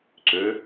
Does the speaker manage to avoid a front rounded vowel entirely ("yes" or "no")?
no